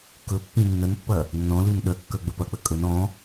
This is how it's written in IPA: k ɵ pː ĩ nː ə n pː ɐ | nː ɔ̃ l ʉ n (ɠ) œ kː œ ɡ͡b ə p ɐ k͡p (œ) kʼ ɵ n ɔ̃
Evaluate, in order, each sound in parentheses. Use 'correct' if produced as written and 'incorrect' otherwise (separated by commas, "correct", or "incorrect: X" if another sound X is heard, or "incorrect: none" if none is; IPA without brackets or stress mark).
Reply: incorrect: ɗ, incorrect: ə